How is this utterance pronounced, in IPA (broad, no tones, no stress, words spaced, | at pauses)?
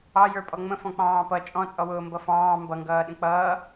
ɑ jə˞pʼɔŋ͡mə̃ fɔ̃k͡pɑ̃ːpʌ t͡ʃʼɔ̃t͡sʼɔwʊː mbʌfɑ̃ː mbʌŋɡʌː ɗə̃k͡pʌː